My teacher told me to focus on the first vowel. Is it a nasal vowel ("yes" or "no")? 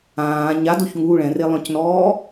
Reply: yes